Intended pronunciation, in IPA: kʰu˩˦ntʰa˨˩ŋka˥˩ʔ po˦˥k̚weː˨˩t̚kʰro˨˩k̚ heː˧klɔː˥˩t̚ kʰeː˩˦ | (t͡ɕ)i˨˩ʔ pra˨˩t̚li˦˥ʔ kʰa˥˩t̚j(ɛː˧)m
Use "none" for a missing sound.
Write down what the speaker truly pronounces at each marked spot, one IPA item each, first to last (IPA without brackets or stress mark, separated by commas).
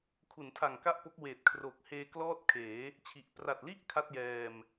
t͡ɕʰ, ɛː˧